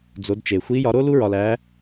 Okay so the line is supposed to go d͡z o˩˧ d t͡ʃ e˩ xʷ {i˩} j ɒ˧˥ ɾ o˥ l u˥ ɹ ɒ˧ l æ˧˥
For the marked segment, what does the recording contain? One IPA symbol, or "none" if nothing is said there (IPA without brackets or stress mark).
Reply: i˧˥